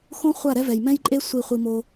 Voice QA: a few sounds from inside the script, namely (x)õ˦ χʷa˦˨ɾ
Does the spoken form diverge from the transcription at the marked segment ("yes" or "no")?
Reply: no